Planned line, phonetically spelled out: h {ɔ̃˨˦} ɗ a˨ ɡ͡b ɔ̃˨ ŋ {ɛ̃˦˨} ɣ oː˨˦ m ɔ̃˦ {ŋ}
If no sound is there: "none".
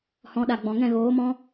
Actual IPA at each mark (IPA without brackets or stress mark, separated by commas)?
ɔ̃˨˦, ɛ̃˦˨, none